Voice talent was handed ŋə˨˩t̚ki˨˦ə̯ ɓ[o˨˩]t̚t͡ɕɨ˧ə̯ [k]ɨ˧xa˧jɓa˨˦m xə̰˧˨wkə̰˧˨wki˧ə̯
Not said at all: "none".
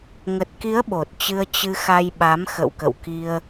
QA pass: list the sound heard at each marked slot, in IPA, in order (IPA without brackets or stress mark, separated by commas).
o˨˩, t͡ɕ